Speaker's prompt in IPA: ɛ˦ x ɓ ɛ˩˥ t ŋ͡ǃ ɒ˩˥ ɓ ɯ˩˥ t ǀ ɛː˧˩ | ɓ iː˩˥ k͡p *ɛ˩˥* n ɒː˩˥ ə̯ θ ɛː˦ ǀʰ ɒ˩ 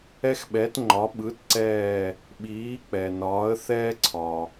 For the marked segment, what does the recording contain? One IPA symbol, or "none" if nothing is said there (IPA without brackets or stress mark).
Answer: ɛ˩